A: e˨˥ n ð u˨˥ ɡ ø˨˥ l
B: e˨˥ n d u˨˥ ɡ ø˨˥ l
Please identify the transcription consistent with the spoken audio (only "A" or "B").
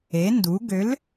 B